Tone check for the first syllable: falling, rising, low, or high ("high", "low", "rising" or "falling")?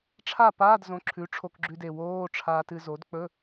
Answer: falling